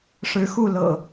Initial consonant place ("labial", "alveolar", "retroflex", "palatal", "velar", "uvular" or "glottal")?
retroflex